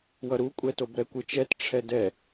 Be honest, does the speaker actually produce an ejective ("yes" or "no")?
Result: yes